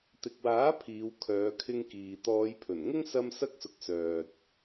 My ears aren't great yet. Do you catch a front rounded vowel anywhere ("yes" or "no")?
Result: yes